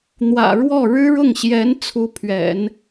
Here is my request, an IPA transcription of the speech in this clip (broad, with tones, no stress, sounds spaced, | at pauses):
n̪ w ä̰˨˩ ɻ w ɔ˥˩ ɻ ɻ̩˥ ɻ ʊ˥˩ ŋ ɕ j ɛ˧˥ n t͡sʰ u˧˥ pʰ ɥ ɛ̰˨˩˦ n